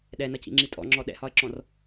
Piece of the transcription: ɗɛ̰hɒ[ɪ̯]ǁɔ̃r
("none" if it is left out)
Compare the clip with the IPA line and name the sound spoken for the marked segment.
ə̯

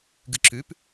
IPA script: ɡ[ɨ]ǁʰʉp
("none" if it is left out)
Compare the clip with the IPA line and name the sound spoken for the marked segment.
ɨ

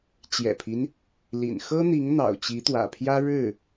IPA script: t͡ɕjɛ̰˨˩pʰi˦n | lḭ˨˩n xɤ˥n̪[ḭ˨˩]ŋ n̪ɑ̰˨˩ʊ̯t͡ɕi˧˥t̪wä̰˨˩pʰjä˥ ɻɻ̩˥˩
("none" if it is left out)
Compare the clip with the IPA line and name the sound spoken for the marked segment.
i˧˥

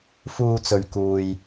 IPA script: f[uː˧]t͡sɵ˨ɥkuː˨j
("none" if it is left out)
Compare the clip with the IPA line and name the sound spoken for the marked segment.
uː˧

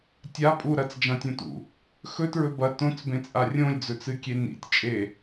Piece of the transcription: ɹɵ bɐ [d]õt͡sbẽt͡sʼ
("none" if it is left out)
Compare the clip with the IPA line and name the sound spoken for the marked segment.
t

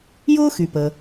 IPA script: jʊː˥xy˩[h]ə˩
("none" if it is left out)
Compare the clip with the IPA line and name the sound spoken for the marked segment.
p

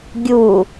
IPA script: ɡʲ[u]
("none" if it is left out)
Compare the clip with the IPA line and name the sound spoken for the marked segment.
u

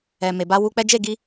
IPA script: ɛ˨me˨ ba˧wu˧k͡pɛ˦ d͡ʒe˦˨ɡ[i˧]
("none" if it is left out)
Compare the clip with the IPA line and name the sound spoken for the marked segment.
i˧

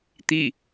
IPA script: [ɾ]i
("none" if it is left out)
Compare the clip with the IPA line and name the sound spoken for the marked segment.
t̪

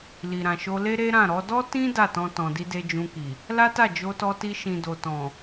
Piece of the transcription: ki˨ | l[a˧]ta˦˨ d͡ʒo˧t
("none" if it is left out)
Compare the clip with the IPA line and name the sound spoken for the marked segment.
a˦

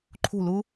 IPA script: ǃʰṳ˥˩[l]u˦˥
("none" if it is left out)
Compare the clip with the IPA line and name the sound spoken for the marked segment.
l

